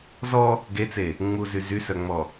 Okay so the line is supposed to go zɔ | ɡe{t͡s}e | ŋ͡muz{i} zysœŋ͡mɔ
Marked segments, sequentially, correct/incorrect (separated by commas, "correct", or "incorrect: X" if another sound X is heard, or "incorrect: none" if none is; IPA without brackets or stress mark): correct, incorrect: y